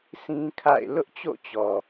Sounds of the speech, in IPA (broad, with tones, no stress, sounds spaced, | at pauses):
s ĩ˦ kʰ a̰˦˨ ɪ̯ l ʊ˦ ʔ t͡ɕ o̰˦˨ t͡ɕ ɔ˨